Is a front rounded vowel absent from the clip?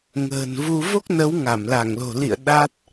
yes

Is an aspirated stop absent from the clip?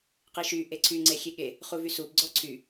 no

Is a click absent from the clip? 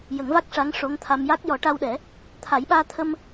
yes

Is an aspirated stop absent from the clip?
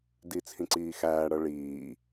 no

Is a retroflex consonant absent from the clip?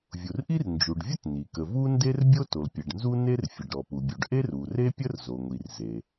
no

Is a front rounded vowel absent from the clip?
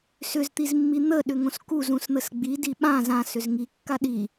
no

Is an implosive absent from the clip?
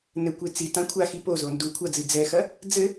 yes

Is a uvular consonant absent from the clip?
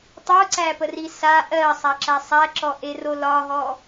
yes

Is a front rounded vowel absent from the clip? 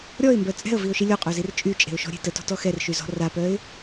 no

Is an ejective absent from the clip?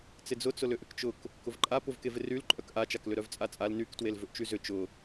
no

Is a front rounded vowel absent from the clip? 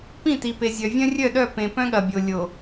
no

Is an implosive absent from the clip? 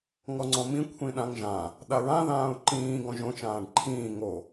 no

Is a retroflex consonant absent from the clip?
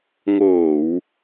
yes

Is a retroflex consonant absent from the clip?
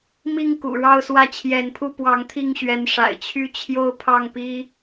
no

